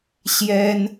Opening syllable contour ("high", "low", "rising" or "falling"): high